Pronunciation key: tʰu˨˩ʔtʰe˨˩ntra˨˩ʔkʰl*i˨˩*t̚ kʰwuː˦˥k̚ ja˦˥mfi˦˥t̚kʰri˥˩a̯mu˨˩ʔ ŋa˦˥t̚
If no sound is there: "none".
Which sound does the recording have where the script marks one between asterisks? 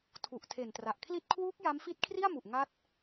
i˥˩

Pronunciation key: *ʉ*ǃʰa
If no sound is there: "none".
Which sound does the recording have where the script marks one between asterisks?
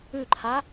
ʉ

